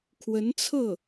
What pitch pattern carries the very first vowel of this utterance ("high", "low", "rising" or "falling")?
rising